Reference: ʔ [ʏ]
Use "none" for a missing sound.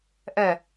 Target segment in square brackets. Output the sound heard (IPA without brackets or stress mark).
ɛ